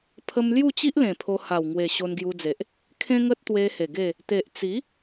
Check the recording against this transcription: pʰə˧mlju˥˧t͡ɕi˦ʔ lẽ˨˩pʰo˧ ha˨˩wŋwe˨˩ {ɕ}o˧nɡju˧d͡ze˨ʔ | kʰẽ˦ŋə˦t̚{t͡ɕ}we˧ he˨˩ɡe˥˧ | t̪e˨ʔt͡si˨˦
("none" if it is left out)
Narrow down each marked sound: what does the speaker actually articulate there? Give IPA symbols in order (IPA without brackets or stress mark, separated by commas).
ɕ, t̪